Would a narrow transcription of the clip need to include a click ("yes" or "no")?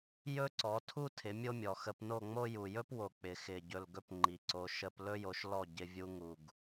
yes